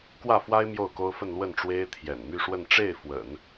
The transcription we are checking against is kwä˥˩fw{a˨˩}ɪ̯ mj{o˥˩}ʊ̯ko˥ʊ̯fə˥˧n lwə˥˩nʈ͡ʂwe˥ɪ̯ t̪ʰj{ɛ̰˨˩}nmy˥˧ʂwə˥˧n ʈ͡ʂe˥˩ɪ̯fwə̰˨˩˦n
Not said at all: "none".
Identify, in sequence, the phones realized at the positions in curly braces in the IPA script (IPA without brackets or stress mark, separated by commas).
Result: a˥, o˥˩, ɛ̰˨˩